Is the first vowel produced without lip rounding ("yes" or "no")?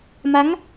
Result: yes